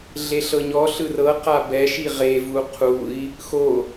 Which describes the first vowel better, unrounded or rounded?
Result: unrounded